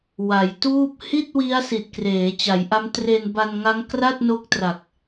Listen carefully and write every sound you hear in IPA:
w a˩˦ j t uː˥˩ p̚ h i˥˩ t̚ w i˦˥ a̯ s i˨˩ t̚ k r eː˩˦ t͡ɕ a˩˦ j ʔ a˦˥ m t r e˧ n b a˧ n ŋ a˦˥ ŋ k r a˥˩ t̚ n o˦˥ k̚ t r a˨˩ k̚

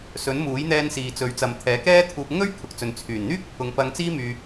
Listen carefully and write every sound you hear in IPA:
s ɵ˨˥ n m uː˨˥ j n̪ ɛː˧ n s iː˨ t͡s ɵ˨˥ ɥ t͡s ɐ˨ m t̪ʰ ɛː˨˥ k ɛː˥ t̪ʰ uː˧ p̚ ŋ ɵ˥ ɥ kʰ ʊ˨˥ k̚ t͡s ɵ˨ n t͡sʰ yː˨˩ n n̪ yː˥ k̚ pʰ ʊ˨˧ ŋ p ɐ˧ ŋ t͡s iː˥ m yː˧

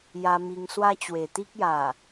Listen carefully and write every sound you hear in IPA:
j a˧ m i˧ ŋ s w a˦ t͡ɕ w e˨˩ t̪ i˦ k̚ j a˨˩

